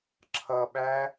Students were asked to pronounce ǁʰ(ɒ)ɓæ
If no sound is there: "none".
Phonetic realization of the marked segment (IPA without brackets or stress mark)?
ʌ